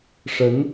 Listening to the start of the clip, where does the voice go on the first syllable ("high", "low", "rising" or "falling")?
rising